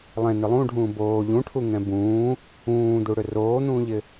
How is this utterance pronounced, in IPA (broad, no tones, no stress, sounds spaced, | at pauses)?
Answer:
lˠ ɛ̃ n ʏ lˠ ũ ɖʱ ũː b oː ʎ ũ ʈʰ u ŋ ɛ̃ b ũː | ũː d̪ u ɽ ʏ r oː n̪ ũː ʎ ɪ